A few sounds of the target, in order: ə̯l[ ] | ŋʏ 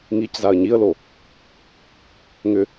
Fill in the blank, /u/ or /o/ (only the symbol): o